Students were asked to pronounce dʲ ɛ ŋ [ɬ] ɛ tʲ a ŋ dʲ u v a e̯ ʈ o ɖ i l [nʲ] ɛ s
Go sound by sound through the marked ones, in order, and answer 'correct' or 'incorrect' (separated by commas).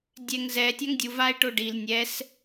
incorrect, correct